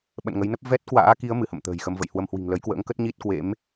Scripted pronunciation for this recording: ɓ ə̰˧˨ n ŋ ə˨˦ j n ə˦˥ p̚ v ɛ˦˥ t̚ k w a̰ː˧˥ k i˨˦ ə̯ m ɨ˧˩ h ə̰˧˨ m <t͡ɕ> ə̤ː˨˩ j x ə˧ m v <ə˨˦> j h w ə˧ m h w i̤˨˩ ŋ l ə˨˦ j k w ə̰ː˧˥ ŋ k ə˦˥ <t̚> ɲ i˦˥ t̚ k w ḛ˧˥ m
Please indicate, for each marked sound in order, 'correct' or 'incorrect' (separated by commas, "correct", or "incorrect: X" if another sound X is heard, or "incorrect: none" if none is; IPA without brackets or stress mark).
incorrect: t̪, incorrect: ə̰˧˨, correct